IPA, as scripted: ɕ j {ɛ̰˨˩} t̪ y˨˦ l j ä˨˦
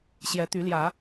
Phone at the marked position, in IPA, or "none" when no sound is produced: ɛ˨˦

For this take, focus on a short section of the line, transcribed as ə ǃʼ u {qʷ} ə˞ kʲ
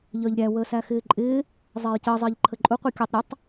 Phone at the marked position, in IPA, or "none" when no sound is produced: qʷ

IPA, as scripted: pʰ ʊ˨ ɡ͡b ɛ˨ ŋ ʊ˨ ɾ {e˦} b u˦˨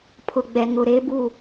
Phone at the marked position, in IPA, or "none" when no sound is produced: e˦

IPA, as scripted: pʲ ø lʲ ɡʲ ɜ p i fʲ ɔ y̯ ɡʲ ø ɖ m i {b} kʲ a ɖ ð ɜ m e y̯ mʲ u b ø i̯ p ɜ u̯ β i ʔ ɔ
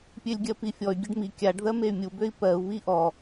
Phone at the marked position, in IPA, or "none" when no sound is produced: none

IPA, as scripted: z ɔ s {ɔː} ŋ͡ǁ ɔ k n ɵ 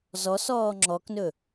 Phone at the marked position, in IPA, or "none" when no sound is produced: ɔː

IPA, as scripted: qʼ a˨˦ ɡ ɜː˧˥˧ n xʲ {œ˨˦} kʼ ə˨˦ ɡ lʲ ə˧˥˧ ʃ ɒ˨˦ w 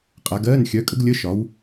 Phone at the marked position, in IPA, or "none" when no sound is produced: œ˨˦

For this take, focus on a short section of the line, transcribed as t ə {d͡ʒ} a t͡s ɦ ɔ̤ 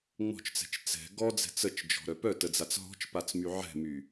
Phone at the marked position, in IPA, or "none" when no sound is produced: d͡z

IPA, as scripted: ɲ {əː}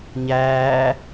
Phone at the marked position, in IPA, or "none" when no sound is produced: æː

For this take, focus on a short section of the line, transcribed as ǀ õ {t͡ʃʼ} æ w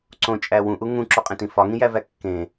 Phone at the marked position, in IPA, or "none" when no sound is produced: t͡ʃʼ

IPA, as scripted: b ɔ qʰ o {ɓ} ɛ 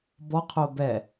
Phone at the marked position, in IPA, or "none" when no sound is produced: b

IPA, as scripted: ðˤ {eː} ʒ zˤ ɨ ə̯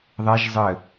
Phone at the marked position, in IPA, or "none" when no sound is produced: e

